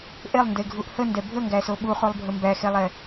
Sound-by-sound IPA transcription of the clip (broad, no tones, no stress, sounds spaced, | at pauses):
ʔ e lˠ n d e ɡʱ u ʔ h ə n d ɛ bʱ ə ŋ ɡ æ s o ɓ u χ u lˠ bʱ ə m b æ x e lˠ ɛ